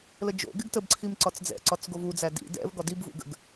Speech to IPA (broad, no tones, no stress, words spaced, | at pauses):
ləd͡ʒo̰ɡɪɡ təbǀʰim ǀɒt͡sd͡zɛ̰ǀɒt͡s ɡovud͡zæ dḭ dɛ̰v ɡɒdibvṵ ɡə̰ɡ